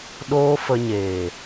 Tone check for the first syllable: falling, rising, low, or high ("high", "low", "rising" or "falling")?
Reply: high